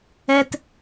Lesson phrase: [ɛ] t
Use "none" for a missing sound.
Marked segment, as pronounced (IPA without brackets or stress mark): ɛ